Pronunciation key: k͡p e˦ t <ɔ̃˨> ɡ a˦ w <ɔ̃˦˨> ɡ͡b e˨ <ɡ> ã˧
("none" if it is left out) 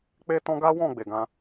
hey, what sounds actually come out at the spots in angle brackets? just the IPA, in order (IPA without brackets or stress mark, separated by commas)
ɔ̃˦, ɔ̃˦˨, ɡ